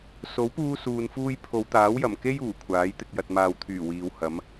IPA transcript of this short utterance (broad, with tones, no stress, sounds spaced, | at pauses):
s o˨˥ w p uː˥ s uː˧ n f uː˥ j pʰ o˨˧ w t̪ aː˨˥ w j ɐ˨˩ m k e˥ j uː˨˩ kʷʰ aː˨˥ j t̪ ɪ˨ k̚ j ɐ˨ t̚ m aː˨ w t̪ʰ yː˨˩ w iː˨˧ w h ɐ˨˥ m